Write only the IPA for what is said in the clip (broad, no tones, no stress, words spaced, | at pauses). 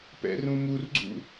pɛ̰rũmurɡ͡ǀṵ